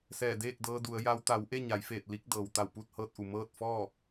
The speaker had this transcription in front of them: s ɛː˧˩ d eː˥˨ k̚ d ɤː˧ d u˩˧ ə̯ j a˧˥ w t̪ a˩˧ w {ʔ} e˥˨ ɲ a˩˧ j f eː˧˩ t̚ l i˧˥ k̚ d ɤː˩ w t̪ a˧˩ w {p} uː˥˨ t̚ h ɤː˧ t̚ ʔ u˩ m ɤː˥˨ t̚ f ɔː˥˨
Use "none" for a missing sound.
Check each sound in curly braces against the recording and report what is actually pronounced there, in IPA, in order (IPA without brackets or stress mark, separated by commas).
ʔ, p